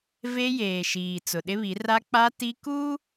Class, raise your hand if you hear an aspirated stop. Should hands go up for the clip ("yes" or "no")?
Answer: no